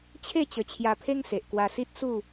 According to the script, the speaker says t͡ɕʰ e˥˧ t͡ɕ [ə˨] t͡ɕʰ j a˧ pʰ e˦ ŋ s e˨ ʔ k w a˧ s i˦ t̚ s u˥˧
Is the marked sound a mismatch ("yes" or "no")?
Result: yes